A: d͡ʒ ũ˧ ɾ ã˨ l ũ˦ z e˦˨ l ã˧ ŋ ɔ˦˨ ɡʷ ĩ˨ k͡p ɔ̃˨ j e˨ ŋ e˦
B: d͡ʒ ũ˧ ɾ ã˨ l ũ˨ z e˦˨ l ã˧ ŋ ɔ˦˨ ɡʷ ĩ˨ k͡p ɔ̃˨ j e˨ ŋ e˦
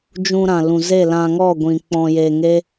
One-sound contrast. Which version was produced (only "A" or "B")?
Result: B